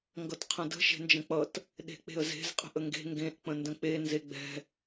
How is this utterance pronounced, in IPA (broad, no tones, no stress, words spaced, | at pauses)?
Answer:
ŋɡʌtqʰə̃də̤ ʃe̤nd͡ʒə̃k͡pʌt | ɗe̤k͡pe̤ə̯ze̤z qʼə̤ʔəŋɡe̤ ŋɡẽʔ k͡pə̃ndə̃k͡pe nzeɡ͡bɛ̤